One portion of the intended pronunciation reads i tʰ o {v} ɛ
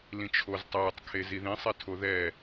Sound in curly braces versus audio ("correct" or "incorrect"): incorrect